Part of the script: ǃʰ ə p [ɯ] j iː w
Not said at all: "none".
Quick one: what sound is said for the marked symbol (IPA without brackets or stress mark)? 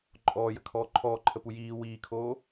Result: u